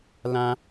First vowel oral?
no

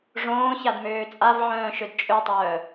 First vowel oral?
no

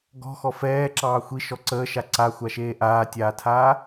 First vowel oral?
yes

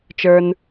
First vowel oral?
yes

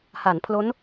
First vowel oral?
yes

